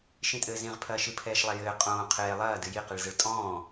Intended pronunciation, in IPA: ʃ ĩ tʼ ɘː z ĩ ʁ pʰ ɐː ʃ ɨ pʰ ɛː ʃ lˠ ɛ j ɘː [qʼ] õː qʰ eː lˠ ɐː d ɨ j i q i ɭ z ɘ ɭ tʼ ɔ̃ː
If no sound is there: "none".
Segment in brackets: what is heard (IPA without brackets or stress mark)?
qʼ